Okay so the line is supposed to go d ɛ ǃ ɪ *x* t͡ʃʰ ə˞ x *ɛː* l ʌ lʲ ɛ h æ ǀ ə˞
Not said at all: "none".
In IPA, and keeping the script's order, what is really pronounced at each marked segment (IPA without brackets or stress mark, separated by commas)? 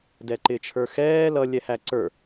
none, ɛː